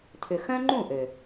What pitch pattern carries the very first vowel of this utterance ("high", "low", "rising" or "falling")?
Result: low